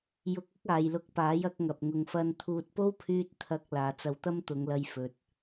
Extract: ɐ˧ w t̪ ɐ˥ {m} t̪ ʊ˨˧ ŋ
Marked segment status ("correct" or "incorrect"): correct